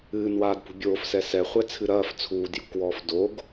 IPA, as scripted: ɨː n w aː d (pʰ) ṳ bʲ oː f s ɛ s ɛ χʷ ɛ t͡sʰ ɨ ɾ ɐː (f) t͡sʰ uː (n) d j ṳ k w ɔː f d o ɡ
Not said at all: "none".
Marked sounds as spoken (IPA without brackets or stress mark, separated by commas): p, f, none